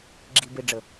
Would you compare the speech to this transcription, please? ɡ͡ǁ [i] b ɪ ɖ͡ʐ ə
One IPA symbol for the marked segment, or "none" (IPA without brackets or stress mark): i